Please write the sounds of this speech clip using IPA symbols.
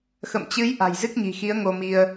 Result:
x ə̰˧˨ m t͡ɕ ɨ˨˦ j ʔ a̤˨˩ j z ɨ˦˥ k̚ ɲ i̤˨˩ x i˨˦ ə̯ ŋ o˧ m i˧ ə̯

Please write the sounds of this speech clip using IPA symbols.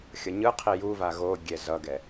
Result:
xʲ ʌ ɲ ɯ qʰ i j u v a ɣ o ɡʲ ɛ z ʌ ɡ ɛ

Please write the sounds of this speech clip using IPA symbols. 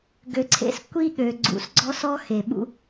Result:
ɡ ø˨ ǀʰ ḛ˧ s kʷ i˦ ɠ ø˨ ɡ͡ǀ ṵ˨ s ɡ͡ǀ ɔ˦ s ɔ˦ x e˨ ɓ ṵ˦

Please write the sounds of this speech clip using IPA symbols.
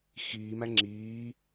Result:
x iː m æ ŋ͡ǁ iː

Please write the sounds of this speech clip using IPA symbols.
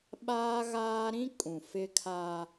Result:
ɓ aː˦ ɣ aː˦ ɾ ĩ˦ kʼ ũ˨ f ɪ˦ kʰ aː˦

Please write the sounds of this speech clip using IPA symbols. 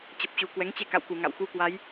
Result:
t͡ɕ ə˨˩ p̚ t͡ɕ u˨˩ k w ɛ˨˦ ŋ t͡ɕ e˧ k a̰˧˨ w k u˧˩ ŋ a̰˧˨ w x u˧ k w a˨˦ j

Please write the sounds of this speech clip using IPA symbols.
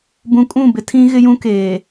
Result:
b ũ˨ kʼ ũ˦˨ b ɪ˦ tʰ ĩ˦ ɣ ɪ˦ j ũ˦ k eː˨

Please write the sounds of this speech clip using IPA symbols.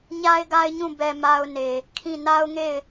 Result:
ɲ a˦ ɪ̯ ɡ a˦ ɪ̯ ɲ ũ˦˨ b ɛ˨ m a˦ ʊ̯ n e˨ | kʰ ĩ˦˨ n a˦ ʊ̯ ŋ e˦˨ ɪ̯

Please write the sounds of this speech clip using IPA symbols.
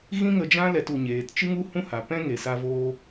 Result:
ɣ ĩ˦ ŋ ə˧ d͡ʒ ã˦ l ɛ˧ t u˨ ɲ eː˨ t t͡ʃ ɨ˦ ŋ u˦ h ũ˦ h a˨ p ɛ̃˦ ŋ e˨ s a˧ v oː˧

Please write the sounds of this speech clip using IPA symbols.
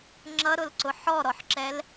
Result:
ŋ͡ǁ ʌ ɾ ʊ l ǀ ʊ ħ ɔ ɾ ɔ ħ ǁ ɛ l

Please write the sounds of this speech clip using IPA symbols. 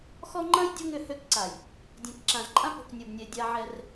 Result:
x ɔ˦ ŋ͡ǃ ɐ̃˦ j dʲ o˦ ŋ ʏ˦˨ h ø˦ k ǀ a˨ j | dʲ ɛ̃˨ k ǁ ã˨ z ǃʼ ã˦ p o̤˨ k nʲ o˨ b nʲ ɛ˨ dʲ a˦ ʕ ɛ˦ r

